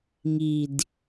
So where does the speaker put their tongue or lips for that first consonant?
velum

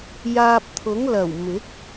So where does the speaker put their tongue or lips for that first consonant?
palate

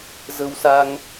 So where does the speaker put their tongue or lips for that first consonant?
tongue tip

